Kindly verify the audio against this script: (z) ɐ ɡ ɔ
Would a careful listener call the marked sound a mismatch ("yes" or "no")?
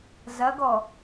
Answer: no